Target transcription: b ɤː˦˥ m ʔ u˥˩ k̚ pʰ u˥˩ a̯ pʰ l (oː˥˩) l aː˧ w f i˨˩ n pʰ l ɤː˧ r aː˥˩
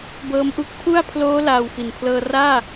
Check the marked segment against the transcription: incorrect: oː˦˥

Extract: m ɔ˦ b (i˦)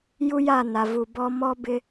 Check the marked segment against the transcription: incorrect: ɪ˦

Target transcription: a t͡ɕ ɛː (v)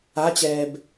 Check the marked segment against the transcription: incorrect: b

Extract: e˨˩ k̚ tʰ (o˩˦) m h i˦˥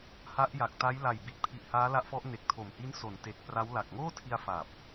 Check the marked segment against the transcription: incorrect: o˨˩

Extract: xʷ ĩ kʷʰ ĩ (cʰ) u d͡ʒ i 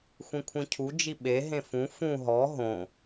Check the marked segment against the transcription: correct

